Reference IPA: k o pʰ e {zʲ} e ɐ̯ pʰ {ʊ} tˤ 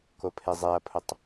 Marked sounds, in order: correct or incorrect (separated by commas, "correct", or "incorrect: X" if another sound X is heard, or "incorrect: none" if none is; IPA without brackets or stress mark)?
incorrect: zˤ, correct